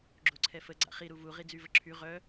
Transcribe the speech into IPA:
ɡ͡ǁ o ǀʰ ɛ f ə ɡ͡ǀ a̰ χ i ɾ u v u ʁ i d͡z y v ə ǁʰ y ʁ œ

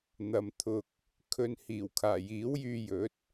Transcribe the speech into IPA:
n̪ ɐ˨ m t̪ʰ ʊ˧ k̚ | kʰ ɵ˨ n h iː˨˩ w kʰ aː˨˩ j iː˨˥ w j yː˧ j ɵ˨˥ t̚

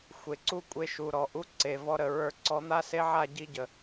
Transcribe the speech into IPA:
xʷ e˨ ǀ u˦ kʷʼ e˧ ʃ u˨ ɾ ɔ˨ ʔ u˧ ǀ e˨ v ɔ˧ ɾ ə˨ ɹ ə˞˧ ǀ ɔ˨˦ n̪ a˦ s e˦ ʕ a˦˨ ɟ i˧ ɟ ə˨

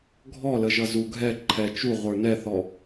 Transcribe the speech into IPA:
ɡʱ ɔ l ə ʒ ʌ z u ɡʱ ɛ ǃʰ ɛ t͡ʃ u ʁʷ ə˞ n ɛ θ ɔ

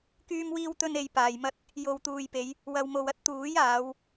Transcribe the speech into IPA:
k yː˧ m w iː˧ w t̪ ɵ˧ n e˨ j p aː˨ j m ɐ˥ t̚ | j o˨ w t̪ uː˨ j p e˨˧ j | w ɐ˨ w m o˨ w ɐ˥ t̚ t̪ uː˨˥ j aː˨˧ w

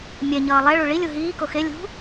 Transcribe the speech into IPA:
mʲ ɛ ɲ ʌː lˠ ɛ ɭ u ɭ i lʲ u ɦ iː k o x e lʲ ṳ

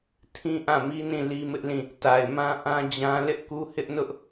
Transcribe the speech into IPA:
tʰ ĩ˦ ʔ ã˦˨ m i˦ n ĩ˦˨ l i˦ m ɪ˦ ʔ l ĩ˦˨ | t a˨ ɪ̯ m ã˦ ʔ ã˦ d͡ʑ ã˦ l ɪ˦ ʔ k u˦ h ɪ˦ ʔ n ʊ˦ ʔ

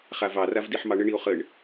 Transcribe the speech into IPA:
χ a v ɑ r a v d i ħ m ɑ ɳ ə ɳ i o̯ χ ə ɳ

